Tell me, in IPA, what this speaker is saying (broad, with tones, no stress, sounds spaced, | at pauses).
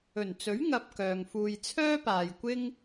ɵ˨˩ n t͡s ɵ˨˥ ɥ ŋ ɐ˨ p̚ k œː˨ ŋ f uː˧ j t͡sʰ œː˥ p aː˨ j kʷ ɪ˥ ŋ